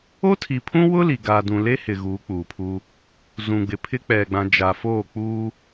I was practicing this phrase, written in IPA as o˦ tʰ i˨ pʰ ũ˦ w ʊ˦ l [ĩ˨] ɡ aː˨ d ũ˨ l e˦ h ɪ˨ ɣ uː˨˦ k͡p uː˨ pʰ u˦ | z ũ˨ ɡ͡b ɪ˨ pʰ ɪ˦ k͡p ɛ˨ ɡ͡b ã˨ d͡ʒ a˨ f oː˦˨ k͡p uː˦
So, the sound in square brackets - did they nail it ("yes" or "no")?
no